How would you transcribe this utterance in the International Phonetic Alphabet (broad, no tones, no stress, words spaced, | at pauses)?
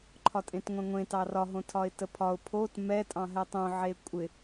ǃʰɒtʼẽtŋʷɛ̃ŋʷẽ tɑrɒ ɦõtʰɒɪ̯təpʰɒʊ̯ pʰot mɛ tʼɑ̃ɦɛtˤõ ʕekʷʼɪ